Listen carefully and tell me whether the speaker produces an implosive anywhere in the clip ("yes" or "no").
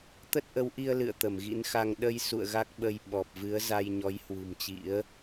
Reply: yes